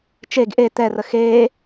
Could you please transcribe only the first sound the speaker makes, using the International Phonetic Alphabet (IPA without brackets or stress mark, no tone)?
t͡ʃ